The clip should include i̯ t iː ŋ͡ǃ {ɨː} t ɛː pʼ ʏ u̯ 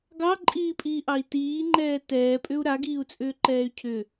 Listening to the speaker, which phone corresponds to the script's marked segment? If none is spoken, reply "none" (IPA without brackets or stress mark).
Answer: ɛː